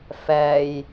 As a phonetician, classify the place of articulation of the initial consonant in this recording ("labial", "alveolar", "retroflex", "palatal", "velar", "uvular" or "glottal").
labial